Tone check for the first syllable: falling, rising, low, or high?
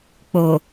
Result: low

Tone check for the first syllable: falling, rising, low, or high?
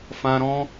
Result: high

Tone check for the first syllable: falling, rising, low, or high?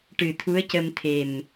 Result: low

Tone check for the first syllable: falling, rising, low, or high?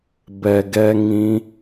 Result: low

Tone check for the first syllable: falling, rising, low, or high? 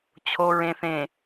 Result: low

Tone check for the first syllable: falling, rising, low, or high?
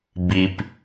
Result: low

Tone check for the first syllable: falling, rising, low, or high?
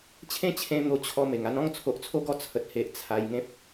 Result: high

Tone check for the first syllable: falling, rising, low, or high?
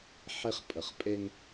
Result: high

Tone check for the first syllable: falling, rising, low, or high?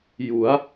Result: rising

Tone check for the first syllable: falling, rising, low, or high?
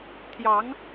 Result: rising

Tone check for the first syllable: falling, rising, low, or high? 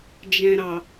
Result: low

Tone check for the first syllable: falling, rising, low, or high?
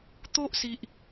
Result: high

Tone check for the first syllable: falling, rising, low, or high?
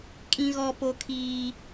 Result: high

